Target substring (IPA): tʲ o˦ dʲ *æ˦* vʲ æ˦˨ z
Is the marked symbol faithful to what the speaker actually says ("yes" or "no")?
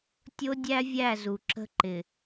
yes